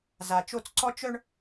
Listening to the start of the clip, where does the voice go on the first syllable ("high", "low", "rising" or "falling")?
low